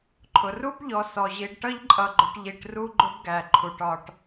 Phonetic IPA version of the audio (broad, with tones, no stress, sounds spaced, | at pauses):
ǃʰ ʊ˩ r u˥ b ʎ ɔ˨ s ɔ˩ ʑ i˨ ɖ ʈ ʌ˥ ʎ ǃʼ ʌ˨ ɡ͡ǃ ʊ˨ ʈ ʎ i˨ ʈ r u˦ ɡ͡ǃ ʊ˦ b ɡ æ˩ ǃʰ u˩ ʈ ɒ˩ ʈ